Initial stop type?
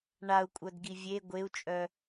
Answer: ejective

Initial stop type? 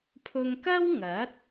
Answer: aspirated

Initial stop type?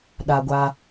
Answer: implosive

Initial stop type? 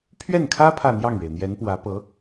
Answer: aspirated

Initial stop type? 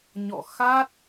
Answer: plain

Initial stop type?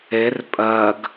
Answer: ejective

